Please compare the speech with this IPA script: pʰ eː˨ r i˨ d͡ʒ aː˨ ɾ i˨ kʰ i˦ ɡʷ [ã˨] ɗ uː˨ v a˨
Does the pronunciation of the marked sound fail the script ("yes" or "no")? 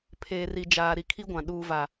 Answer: no